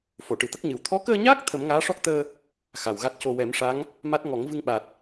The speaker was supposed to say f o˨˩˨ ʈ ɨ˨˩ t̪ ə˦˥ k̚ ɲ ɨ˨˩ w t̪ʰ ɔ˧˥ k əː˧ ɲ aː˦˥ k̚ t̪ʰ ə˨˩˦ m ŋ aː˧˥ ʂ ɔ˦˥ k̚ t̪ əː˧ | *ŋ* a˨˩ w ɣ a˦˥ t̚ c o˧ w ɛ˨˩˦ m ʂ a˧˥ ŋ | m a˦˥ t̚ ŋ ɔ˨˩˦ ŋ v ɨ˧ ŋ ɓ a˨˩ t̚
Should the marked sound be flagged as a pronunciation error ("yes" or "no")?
yes